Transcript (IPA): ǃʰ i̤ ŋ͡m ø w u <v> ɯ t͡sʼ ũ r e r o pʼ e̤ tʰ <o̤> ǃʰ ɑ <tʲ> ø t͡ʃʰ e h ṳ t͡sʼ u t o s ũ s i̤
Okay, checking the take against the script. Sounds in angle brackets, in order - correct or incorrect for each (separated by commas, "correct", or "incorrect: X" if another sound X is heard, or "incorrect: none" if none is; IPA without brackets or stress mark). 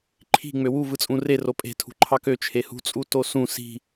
correct, incorrect: ṳ, incorrect: k